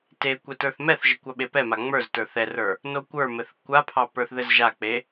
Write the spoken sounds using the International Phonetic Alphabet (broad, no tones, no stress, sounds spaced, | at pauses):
t e kʷ ɛ t ə˞ θ m ɛ θ ʒ ə kʷ ɑ ɓ e p ɛ m a ŋ͡m ə˞ z t ə˞ θ ɛ r ə˞ | n o kʷ ə˞ m ɘ θ kʷ a pʰ ɑ p ə˞ θ ð ɘ z ʒ a k͡p e